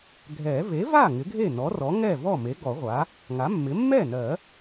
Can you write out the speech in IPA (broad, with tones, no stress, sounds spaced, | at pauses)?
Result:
ɡʱ ɛ˨˩˦ v e˩˥ v a˥˩ ŋ ɪ˩˥ ɡʱ e˥˩ n ɔ˩˥ r ɔ˩˥ ŋ ɛ˥˩ v ɔ˥˩ m e˩˥ ɡ ɔ˨˩˦ ʁʷ a˩˥ | ŋ a˩˥ mː ɪ˩˥ mː ɛ˥˩ n ɜ˨˩˦